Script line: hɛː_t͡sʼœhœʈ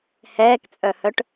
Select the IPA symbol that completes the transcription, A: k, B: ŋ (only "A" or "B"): A